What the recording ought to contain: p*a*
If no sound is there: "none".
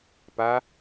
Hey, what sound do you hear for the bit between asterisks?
a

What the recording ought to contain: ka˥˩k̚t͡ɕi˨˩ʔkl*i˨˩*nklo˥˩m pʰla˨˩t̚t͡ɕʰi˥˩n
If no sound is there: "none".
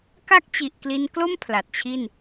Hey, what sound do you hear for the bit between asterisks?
i˧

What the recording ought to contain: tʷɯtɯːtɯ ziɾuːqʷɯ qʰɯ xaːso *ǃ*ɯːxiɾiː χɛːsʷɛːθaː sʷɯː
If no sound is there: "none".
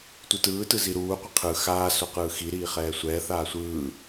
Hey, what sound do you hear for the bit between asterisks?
q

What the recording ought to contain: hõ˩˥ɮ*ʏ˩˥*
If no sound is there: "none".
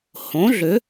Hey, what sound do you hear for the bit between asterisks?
ʏ˩˥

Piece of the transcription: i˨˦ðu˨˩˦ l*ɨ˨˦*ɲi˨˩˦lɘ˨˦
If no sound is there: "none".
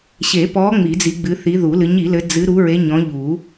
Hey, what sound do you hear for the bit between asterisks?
ɨ˨˦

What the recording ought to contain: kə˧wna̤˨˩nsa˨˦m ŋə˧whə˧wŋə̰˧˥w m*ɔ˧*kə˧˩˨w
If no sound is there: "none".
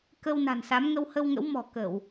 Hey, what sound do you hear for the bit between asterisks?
ɔ̤˨˩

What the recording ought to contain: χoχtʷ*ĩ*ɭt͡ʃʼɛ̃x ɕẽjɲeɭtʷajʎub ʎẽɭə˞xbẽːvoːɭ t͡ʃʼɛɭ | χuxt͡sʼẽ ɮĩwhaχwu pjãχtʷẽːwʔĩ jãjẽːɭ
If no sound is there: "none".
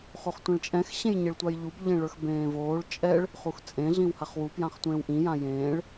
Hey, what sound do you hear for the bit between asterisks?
ẽ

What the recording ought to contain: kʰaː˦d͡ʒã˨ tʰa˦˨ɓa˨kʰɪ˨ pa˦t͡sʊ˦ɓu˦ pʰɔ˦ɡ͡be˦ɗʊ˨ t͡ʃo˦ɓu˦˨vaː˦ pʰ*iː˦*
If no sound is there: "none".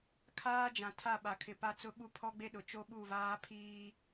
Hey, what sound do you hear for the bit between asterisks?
iː˦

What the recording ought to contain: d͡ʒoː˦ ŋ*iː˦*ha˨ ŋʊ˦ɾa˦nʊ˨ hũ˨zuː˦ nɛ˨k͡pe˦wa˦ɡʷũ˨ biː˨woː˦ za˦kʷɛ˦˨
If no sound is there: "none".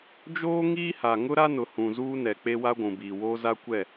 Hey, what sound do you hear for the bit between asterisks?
iː˦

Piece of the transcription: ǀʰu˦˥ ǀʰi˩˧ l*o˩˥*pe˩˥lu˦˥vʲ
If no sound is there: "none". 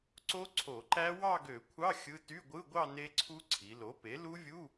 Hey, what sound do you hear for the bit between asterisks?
o˩˥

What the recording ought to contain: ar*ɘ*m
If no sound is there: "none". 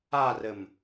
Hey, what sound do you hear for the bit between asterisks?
ɘ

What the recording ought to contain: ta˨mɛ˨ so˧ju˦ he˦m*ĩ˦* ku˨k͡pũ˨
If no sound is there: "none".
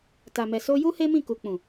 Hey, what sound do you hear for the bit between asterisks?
ĩ˦˨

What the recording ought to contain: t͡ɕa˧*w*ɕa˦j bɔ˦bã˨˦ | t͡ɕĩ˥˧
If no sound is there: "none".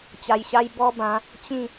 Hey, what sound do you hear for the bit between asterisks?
j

